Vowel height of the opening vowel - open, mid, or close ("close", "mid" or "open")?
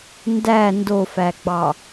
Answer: open